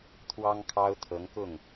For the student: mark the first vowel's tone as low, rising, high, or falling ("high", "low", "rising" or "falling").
high